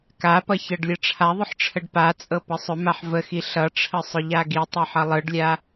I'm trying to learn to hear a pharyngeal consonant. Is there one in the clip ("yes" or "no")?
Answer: yes